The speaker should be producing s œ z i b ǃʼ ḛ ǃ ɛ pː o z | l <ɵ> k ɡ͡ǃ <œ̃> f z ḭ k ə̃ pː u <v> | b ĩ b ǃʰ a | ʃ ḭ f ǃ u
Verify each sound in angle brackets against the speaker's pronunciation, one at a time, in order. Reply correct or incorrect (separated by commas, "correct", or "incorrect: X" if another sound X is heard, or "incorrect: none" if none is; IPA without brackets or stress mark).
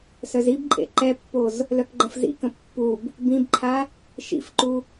incorrect: œ, incorrect: ə̃, incorrect: b